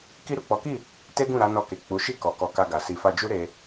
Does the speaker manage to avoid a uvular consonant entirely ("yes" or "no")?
yes